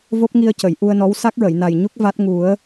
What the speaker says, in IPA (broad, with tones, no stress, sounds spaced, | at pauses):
v o˦˥ p̚ ŋ i˧ ə̯ c ə˨˩˨ j ʔ u˧ ə̯ n ɔ˧˥ w s a˦˥ k̚ ɹ ə˨˩˨ j n a˨˩ j ɲ u˦˥ k̚ v a˦˥ t̚ ŋ u˨˩˦ ə̯